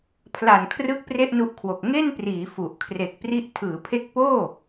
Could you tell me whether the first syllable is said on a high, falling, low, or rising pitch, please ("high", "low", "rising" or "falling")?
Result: low